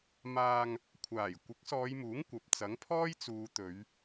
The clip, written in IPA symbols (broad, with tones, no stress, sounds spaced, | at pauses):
m aː˧ ŋ | kʷʰ aː˨˩ j kʷ ɪ˨˥ k̚ s ɔː˨˧ j m uː˨˥ ŋ kʷ ɐ˨ p̚ t͡s ɐ˨˥ ŋ pʰ ɔː˥ j t͡s uː˨˧ t̪ ɵ˨˧ ɥ